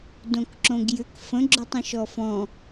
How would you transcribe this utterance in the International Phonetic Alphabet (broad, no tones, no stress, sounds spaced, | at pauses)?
d õ k ǁ õ ɡ j ʏ k f ə̃ ɡ͡ǁ o tˤ ĩ ʃ ɔ f ɔ̃